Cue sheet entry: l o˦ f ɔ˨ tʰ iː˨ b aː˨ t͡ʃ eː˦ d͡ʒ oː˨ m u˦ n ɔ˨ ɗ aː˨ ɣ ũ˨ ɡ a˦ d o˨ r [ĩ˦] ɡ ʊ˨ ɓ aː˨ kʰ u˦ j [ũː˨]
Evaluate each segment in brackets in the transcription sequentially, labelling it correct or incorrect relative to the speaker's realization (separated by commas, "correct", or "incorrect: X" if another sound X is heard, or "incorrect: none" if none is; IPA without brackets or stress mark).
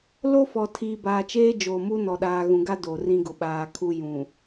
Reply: correct, incorrect: ũ˨